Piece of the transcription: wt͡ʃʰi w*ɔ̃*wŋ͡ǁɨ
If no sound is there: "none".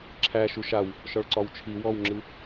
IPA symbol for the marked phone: ɔ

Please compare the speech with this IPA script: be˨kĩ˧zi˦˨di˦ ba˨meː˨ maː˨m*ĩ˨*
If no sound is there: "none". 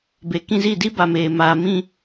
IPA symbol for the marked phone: ĩ˦˨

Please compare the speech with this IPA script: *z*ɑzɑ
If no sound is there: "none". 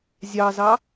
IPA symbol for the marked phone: zʲ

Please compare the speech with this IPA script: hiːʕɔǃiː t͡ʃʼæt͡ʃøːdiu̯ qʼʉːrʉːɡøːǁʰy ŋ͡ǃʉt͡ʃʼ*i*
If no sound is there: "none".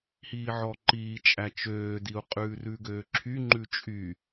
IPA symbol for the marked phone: y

